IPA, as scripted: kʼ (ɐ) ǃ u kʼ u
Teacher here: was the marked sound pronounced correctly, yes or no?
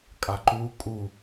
no